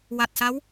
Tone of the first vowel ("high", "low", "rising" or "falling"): low